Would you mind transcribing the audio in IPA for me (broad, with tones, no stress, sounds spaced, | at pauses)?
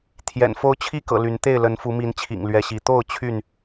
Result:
t̪ʰ j ɛ̰˨˩ n f o˦ ʊ̯ t͡ɕʰ i˥˨ k ɤ̰˨˩ l y˨˦ n t̪ e˥˨ ɪ̯ l ə˨˦ n f u˨˦ m i˨˦ n t͡ɕʰ ḭ˨˩ ŋ l ɥ ɛ˨˦ ɕ i˨˦ t̪ o˥˨ ʊ̯ t͡ɕʰ y˥˨ n